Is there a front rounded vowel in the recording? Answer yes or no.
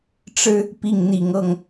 no